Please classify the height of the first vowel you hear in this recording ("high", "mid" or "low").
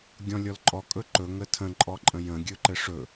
mid